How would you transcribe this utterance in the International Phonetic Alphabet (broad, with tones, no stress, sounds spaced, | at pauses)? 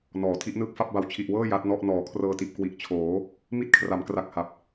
n ɔː˩˦ tʰ i˦˥ ʔ n ɯː˥˩ k̚ f a˥˩ p̚ b a˨˩ w t͡ɕʰ i˨˩ ʔ w ɤː˥˩ j a˦˥ t̚ n ɔ˥˩ ʔ n ɔː˩˦ kʰ r ɤː˧ t i˨˩ ʔ k w i˨˩ ʔ t͡ɕʰ oː˩˦ | m i˥˩ t̚ kʰ r a˩˦ m k r a˨˩ k̚ h a˨˩ p̚